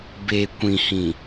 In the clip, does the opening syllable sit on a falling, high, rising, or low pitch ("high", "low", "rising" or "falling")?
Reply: low